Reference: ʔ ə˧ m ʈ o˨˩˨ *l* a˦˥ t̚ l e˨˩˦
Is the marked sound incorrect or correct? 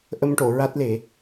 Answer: incorrect